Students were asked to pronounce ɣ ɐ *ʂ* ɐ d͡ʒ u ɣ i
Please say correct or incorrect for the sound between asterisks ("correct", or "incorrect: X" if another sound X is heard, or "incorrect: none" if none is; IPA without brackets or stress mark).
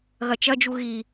incorrect: t͡ʃ